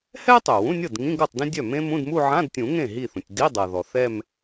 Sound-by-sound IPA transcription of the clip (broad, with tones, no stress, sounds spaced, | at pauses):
h ɛ˥ ə̯ tˤ œ˩ w ũ˧˥˧ nʲ ɤ˥˩ d ŋ ĩ˧˥˧ ɡ ɤ˥˩ tˤ d ĩ˥ dʲ œ˥˩ m ẽ˥ m ũ˧˥˧ d m u˥˧ ʕ ã˧˥˧ d tʲ ũ˨˩˦ ŋ ẽ˥˩ ɦ i˥˩ θ ũ˩ tʲ d i˧˥˧ dˤ ɤ˩ ð ɔ˩ θ ɛ˥˧ m